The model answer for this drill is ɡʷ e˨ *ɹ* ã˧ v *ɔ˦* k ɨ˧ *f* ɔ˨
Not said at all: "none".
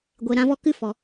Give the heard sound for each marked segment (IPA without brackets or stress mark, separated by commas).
ɾ, ɔ˧, f